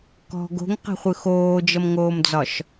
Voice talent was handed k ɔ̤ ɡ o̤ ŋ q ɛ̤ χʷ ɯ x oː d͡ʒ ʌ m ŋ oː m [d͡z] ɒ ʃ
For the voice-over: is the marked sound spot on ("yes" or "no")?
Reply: yes